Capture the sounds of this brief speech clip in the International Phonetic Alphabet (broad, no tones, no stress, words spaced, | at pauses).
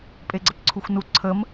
pʼeɡ͡ǀəpǀʰuxʷnu ǀʰəm